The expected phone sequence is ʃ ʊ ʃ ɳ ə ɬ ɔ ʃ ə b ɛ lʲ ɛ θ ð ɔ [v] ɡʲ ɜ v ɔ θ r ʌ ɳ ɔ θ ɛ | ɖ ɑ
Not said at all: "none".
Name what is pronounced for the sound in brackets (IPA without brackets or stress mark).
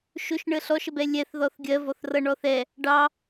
θ